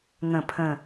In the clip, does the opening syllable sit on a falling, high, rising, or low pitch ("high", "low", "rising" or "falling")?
low